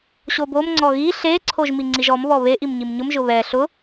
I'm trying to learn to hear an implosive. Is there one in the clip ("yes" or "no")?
no